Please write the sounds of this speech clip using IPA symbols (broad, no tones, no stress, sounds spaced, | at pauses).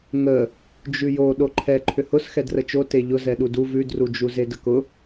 ŋ ə | d͡ʒ ʉ j o ɗ o ǃʰ ɛ ǃʰ ʏ h ʊ s x ɛ d r ə t͡ʃ o t e ʎ ʊ z ɛ ɗ u d u v ʉ d r u d͡ʒ u z e d ə k ʊ